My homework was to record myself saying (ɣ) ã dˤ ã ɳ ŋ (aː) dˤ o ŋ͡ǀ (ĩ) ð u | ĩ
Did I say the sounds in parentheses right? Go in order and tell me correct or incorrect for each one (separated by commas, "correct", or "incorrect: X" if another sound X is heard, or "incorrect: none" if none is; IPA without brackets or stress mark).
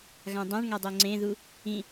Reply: correct, incorrect: a, incorrect: ẽ